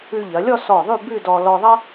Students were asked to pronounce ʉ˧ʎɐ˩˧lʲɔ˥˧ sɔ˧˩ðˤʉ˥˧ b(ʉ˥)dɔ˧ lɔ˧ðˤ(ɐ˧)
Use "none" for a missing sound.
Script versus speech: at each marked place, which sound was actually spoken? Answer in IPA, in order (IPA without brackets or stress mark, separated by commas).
ʉ˥˧, ɐ˥